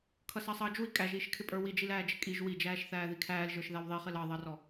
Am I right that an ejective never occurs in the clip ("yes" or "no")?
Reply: no